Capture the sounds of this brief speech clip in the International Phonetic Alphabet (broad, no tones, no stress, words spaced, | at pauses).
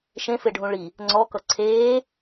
ʃẽfeɖʱũ ɭi | ŋ͡ǀɔkʌ ǀʰeː